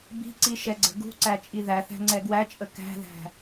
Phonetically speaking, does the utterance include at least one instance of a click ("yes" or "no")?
yes